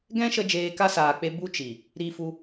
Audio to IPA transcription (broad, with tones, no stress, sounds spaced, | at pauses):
ɡ ɛ̃˦ ʃ ə˧ d͡ʒ eː˧ k a˦ s aː˨ k͡p e˧ b u˦ t͡ʃ i˨ | ɾ i˧ f u˧